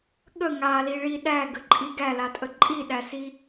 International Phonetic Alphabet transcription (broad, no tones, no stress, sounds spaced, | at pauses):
ɠ ə ŋ a l i ɭ i ɗ æ ɡ ə ǃʼ i ɡ æ l a tʼ ə ǃʼ i ɗ æ s i